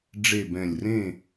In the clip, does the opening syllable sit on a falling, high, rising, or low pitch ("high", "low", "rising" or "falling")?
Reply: falling